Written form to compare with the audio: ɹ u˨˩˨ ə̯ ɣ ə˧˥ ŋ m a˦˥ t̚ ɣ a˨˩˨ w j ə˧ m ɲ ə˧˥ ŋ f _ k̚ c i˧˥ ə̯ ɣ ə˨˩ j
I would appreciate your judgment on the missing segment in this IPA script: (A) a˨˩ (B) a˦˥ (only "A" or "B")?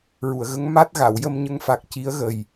A